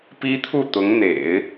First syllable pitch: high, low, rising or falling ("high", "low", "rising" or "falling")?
high